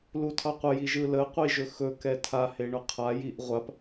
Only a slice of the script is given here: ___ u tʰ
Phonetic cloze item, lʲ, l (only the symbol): l